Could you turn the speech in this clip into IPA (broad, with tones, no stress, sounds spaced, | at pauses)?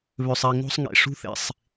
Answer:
β ø˨ sˤ e˨ ŋ o̤˦ sˤ ŋ ḛ˨ ʂ ṳ˦ θ ḛ˨ sˤ